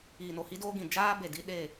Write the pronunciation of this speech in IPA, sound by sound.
iː˨no˨hi˦doː˦ ɡĩ˨ d͡ʒaː˦be˨ di˧ ɗe˦˨

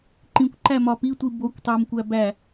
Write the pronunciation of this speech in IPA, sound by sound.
ǃĩkʷǃæ mɒpitʷi bokʷ tˤomkʷæ bæ

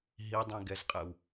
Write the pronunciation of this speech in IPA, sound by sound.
ɦidˤĩɡɛzqʼɛw

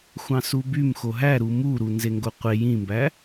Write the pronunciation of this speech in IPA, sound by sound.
xʷɑ̃subym xoɦæɾu muɾu nzeŋɡoqʷe jĩmbæ

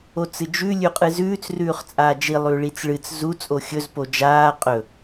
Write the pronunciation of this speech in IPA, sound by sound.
ot͡sɨd͡ʒʉ lʲʉqʼɨzʉːt͡s rʉːχt͡sʼaːd͡ʒi lˠʉɭit͡sɭɨt͡s zu t͡sʼoxʲɵz pod͡ʒaː qʼɵ

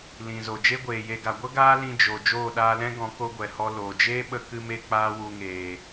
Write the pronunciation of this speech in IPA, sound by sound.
lĩ˨zo˨ d͡ʒe˦ɡʷeː˨je˧ɡa˨ ɡʷə˦ ɡaː˦lĩ˧ d͡ʒo˨ d͡ʒoː˦˨ɗaː˧lɛ̃˦ɡɔ̃˨˦ ko˦ɡʷɛ˨ hɔ˧ loː˨ d͡ʒeː˦ɓə˧kɨ˧me˧ k͡paː˦wu˧ŋeː˨

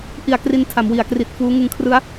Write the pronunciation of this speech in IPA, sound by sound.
ʔi˨˩a̯kri˧n tʰa˩˦mwi˩˦a̯kri˨˩t̚fuː˦˥ ŋɯ˧ŋkʰrɯ˦˥a̯

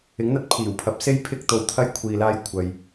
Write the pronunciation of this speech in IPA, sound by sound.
ɪ˨˥ŋn̪ɐ˥t̚pʰiː˨˩wpʰɐ˧p̚ se˥jpʰɪ˥k̚t̪o˧wt̪ʰɐ˥j kʷʰiː˧laː˥j kʷʰɐ˨j

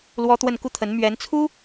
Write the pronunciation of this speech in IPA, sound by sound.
lwɔ˥t̪wə˥˧n ku˥˩t̪ʰə˧˥nmɥɛ˧˥n t͡sʰu˥

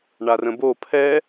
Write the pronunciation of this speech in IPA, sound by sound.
ɳarə̃bo pʰɛ

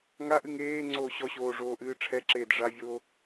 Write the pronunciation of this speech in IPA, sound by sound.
ŋaʔɨŋ eː ŋ͡ǀoːɕɔɕoː ʐoːʔɨːʈ͡ʂʰɛǁeːd ʐavʲoː

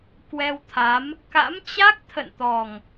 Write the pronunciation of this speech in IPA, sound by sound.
kwɛ˧wt̪ʰa˨˦m | ka̰˧˥mt͡ɕa˦˥k̚ t̪ʰə̰˧˨nt̪ɔ˨˩ŋ

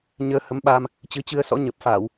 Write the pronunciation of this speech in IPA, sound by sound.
ɲəː˧ hə˨˦mɓaː˧m | t͡ɕɨ˨˦t͡ɕɨ˧ə̯sɔ̰˧˥ ɲə˨˩p̚faː˧˩˨w

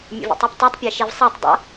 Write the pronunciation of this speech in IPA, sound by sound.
mʲṵvḭtˤuptˤetˤ pʲɛʃivsˤatˤ dˤa̰

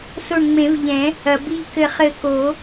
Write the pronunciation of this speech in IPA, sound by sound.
so˧˩ɳŋ͡mẽ˨˩˦vʎɛ̃˨˩˦ | ɐ˩bi˧˩ʎ kɘ˧˩χɘ˧˩ko˨˩˦

